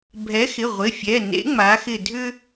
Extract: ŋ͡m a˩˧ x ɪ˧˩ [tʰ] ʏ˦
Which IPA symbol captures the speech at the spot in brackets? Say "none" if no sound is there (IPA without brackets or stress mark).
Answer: dʱ